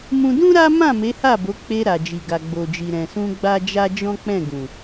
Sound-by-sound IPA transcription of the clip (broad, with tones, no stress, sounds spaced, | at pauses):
m ũ˧ d ũ˦ ɾ a˦ m ã˦˨ m e˨˦ h a˦˨ b o˨˦ k͡p e˧ ɾ a˨ d͡ʒ i˨ ɡ a˨ ɡ͡b o˨ d͡ʒ i˨ ɾ ɛ̃˨ s ũ˧ ɡ͡b a˦ d͡ʒ a˦ d͡ʒ ɔ̃˦ k͡p ɛ̃˦˨ ɡ ũ˨